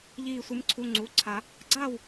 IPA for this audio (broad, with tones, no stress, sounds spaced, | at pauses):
ʎ iː˧˩ sʷ ɨ˨˦ m ǀʰ u˩˧˩ ŋ͡ǀ u˩˧˩ ǀʰ a˨˩˦ | ɡ͡ǀ aː˥˨ w